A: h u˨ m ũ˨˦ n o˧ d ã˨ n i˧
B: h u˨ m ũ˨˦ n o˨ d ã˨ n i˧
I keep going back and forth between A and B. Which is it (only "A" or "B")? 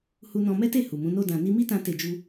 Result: A